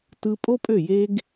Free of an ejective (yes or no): no